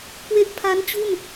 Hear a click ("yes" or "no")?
no